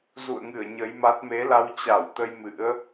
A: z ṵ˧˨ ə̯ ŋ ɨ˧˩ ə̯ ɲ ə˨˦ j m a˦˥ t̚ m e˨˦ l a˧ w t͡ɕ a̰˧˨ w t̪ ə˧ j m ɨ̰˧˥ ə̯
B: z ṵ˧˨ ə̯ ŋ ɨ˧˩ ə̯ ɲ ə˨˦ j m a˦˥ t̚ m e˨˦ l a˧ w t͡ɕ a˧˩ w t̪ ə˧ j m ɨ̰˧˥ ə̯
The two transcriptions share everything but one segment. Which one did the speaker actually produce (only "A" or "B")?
B